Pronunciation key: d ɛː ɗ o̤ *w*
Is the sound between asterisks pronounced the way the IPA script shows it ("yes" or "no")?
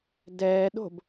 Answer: no